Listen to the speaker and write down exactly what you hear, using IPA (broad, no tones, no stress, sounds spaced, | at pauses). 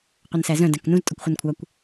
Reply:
qʷ œ n s æ z œ̃ d æ̃ k n ũ z tʼ ɔ kʷ χʷ œ n kʷʰ ɑ kʷ